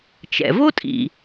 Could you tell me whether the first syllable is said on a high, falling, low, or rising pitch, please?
low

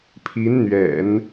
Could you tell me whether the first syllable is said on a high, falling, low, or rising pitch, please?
rising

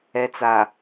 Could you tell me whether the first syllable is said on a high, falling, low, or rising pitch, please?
low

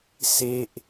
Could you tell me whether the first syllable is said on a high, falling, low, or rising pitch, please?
falling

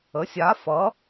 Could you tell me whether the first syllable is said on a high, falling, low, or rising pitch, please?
rising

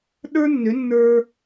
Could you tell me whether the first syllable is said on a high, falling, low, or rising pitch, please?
high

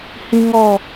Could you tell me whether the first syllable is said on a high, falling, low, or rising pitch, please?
high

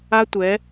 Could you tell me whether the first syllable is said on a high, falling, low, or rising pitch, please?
high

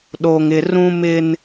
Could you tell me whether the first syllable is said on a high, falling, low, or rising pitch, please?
low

